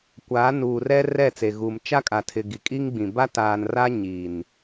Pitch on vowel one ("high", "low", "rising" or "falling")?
rising